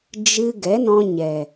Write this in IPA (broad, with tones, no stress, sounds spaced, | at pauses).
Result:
d͡ʒ ɨ˧ ɡ ɛ˨˦ n ɔ̃˧ ɲ ɛ˨